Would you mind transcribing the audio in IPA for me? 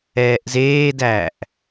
ɛː ʔ z eː d æː ʔ

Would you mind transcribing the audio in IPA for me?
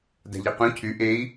d a̤ ʎ e q ũ cʰ y ʔ e i̯

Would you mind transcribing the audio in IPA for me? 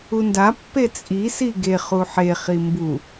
u n d a pː e t͡sʼ i s i ɡ e χ u ħ e χ i m b u

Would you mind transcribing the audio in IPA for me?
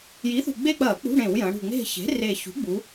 j i˩˥ θ ṳ˨˩ ɡ͡b e˦˨ k͡p ɐː˧˩˧ k͡p ṳ˧˥˧ ɽ ẽ˧˩˧ w j ɐ̃˩˧ ɽ ṳ˨˩ ŋ͡m e̤˦˨ ç e̤˩˥ r eː˨˩ ç ṳ˩˥ ɡ͡b u˩˧

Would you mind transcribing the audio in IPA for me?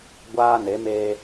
ɡʷ aː˦ n e˨˦ m eː˦

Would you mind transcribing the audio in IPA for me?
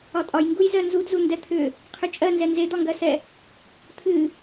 ɒ tʼ ɒ j ŋ ɡ u j z ɜ n z u d z u n d ɛ t̪ʰ ʏ | qʰ ʏ t͡ʃʼ ɜ n z ɛ n z e d̪ ɒ ŋ ɡ ɜ s ɛ | t̪ʰ ɨ

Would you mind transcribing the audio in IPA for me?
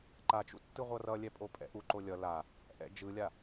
ǃ a t͡ʃ ṵ tː ɯ ʁʷ ʌ r ʌ lʲ ɛ pʼ o pʼ ɛ̰ ʔ u ǃ o lʲ ʌ l a | ʔ ɛ̰ d͡ʒ ɯ lʲ a

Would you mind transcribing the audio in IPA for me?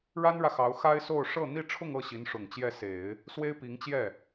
ɻ a˥ n ɻ ä˨ x ɑ˧˥ ʊ̯ x a˥ ɪ̯ s o˥˧ ʊ̯ ʂ ɤ˥˧ n̪ i˥˧ ʈ͡ʂʰ ʊ˥˧ ŋ ɤ˥˩ ɕ i˧˥ n ʂ ʊ˨˩ ŋ t͡ɕ j ɛ˥˩ s e˨˩˦ ɪ̯ | s w e˥ ɪ̯ p i˧˥ ŋ t͡ɕ j ɛ˥˩

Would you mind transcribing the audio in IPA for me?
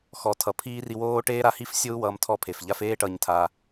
x ɔ˨˦ tʰ ʌ˧ pʰ iː˦ r i˦ w oː˦ ʈ eː˦ ɾ a˧ h i˦ f sʲ o˦ u̯ w ʌː˧ m tʰ ɔ˧ pʰ e˨ f ʎ a˧ f eː˦ ʈ ʌː˧ ɲ tʰ a˧

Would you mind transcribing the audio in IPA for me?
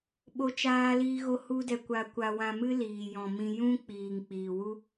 ɓ o˦ t͡ʃ aː˦ l iː˦ ɣ o˦ h u˦ d ɛ˧ kʷ a˧ kʷ a˧ w ã˧ m ɨ˦ l iː˨ j ɔ̃˨ m ĩ˧ j ũ˦ k͡p iː˨ ŋ k͡p iː˨ w u˦

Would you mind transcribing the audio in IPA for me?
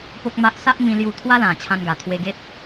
p o˦ k̚ m a˦ ʔ s a˦ ʔ m ĩ˧ l j u˥˧ t̪ʰ w a˦ l ã˨˩ t͡ɕʰ ã˧ n ɡ a˨˩ t̪ʰ w e˧ ɡ e˦ t̚

